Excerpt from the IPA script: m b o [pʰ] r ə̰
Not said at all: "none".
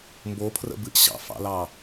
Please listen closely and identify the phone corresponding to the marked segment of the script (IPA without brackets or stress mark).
pʰ